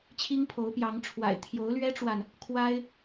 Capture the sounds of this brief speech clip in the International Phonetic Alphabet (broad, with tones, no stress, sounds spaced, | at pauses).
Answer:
t͡ɕʰ i˦ ŋ pʰ o˨˦ ʊ̯ p j ɑ˨˦ ŋ ʈ͡ʂʰ w a̰˨˩ ɪ̯ t̪ʰ j o˨˦ ʊ̯ l ɥ ɛ˦ ʈ͡ʂ w a˨ n | kʰ w a˦ ɪ̯